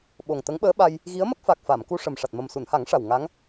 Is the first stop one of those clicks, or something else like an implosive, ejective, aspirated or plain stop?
implosive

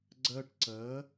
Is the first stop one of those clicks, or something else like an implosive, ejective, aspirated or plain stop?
click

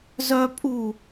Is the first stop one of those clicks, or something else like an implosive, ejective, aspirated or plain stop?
ejective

